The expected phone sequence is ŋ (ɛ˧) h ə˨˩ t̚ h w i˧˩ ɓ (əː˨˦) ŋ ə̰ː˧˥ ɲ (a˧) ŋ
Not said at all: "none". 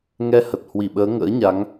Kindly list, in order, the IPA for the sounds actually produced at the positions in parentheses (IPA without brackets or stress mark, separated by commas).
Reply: ɛ˧, əː˨˦, a˨˦